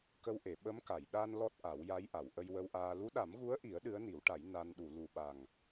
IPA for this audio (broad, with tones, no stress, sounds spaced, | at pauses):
k ə˧ w ʔ e˨˩˨ ɓ ə˧˥ m k a˨˩˨ j ɗ a˧ n l ɔ˦˥ t̚ ʔ a˨˩˦ w j a˧˥ j ʔ a˨˩˨ w ʔ ə˧ j w ə˧ w ʔ aː˧ l u˧˥ ɗ a˨˩˦ m ɣ u˧˥ ə̯ ʔ i˨˩˦ ə̯ ɗ ɨ˧˥ ə̯ n i˨˩˦ w ʈ a˨˩˦ j n a˧ n ɗ u˨˩˨ l u˨˩ ɓ a˨˩ ŋ